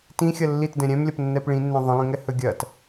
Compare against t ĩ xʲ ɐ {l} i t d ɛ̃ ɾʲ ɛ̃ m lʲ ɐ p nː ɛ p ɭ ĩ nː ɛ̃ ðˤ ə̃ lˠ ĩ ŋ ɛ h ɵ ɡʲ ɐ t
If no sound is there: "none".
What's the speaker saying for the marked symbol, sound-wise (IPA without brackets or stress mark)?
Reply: lː